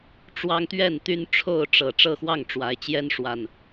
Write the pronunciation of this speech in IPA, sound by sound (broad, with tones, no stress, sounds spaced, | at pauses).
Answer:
ʈ͡ʂ w ɑ˦ ŋ t̪ ɥ ɛ˥˨ n t̪ y˦ n ʈ͡ʂʰ o˥˨ ʊ̯ ʈ͡ʂ ɤ˨˩ ʈ͡ʂ ɤ˥˨ x w ɑ˥˨ ŋ ʈ͡ʂ w a˨˦ ɪ̯ t͡ɕ j ɛ˦ n ʂ w a˨˩ n